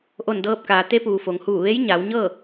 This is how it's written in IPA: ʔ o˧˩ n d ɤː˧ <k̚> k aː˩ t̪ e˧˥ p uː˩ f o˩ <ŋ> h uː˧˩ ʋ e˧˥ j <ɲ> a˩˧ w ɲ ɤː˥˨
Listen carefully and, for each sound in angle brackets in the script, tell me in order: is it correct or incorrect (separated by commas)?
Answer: incorrect, correct, correct